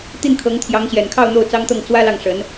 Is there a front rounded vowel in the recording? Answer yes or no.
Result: no